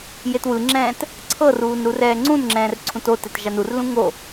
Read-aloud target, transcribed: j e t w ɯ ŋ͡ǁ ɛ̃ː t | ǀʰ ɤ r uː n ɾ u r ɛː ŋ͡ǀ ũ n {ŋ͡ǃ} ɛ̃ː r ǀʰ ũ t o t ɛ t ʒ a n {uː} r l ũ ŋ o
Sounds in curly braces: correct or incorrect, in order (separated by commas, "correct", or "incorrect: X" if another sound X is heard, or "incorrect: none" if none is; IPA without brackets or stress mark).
incorrect: ŋ͡ǁ, incorrect: u